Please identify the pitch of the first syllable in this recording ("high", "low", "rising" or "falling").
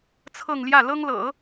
falling